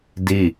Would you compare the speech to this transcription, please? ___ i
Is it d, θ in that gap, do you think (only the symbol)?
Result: d